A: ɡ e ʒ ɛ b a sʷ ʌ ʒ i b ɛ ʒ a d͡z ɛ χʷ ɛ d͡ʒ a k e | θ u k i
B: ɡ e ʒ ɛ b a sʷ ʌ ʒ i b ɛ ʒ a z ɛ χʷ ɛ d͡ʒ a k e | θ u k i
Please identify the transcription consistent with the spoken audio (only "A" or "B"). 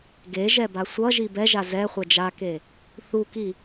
B